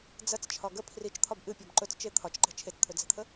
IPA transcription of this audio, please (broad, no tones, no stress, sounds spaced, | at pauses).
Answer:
d͡z ɐ t͡s t͡ʃʰ ɒ ɡ ə pʰ r i t͡ʃ t̪ʰ ɒ b ʔ ɨ pʲ ɒ b ǃ ɵ t͡s t͡ʃ e t̪ʰ ɒ t͡ʃ ǃ ɛ̤ t͡ʃʰ e t͡s t̪ʰ ɵ d͡z ɛ̤ t̪ʰ ə